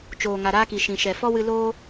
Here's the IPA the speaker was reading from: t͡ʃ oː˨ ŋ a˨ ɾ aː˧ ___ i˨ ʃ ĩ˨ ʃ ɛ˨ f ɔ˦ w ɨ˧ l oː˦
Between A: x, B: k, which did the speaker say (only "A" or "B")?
B